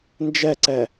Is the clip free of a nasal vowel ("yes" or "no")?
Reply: yes